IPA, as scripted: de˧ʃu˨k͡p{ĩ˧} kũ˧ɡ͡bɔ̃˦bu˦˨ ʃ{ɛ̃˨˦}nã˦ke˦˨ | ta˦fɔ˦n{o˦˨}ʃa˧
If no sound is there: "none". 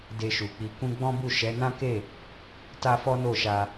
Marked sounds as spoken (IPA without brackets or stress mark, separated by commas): i˧, ɛ˨˦, o˦˨